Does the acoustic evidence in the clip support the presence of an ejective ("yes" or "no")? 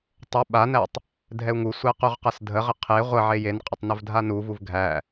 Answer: yes